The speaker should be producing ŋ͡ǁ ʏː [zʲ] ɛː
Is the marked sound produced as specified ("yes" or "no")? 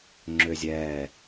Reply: yes